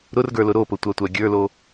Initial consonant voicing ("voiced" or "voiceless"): voiced